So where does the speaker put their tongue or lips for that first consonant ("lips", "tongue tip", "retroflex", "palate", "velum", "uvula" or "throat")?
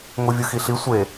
velum